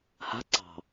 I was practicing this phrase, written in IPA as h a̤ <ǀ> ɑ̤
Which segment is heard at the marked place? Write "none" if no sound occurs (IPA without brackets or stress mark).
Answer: ǀ